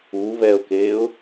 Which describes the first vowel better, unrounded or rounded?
rounded